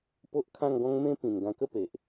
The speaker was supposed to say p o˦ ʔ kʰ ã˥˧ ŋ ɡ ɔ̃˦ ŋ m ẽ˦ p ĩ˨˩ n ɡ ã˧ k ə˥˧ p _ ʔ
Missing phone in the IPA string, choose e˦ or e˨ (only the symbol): e˨